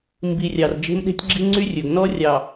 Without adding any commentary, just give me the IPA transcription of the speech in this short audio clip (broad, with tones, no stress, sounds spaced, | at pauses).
m b i˨ rʲ ɑ˨ r d͡ʒ e̤˦ m ɗ e̤˦ tʲ ɡ͡ǁ i˦ ŋ͡ǀ y˦ rʲ ɵ˨ ɡ n ɔ˦ rʲ ɑ˨